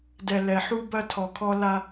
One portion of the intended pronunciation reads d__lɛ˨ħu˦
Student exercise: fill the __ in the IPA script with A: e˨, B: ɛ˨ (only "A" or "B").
B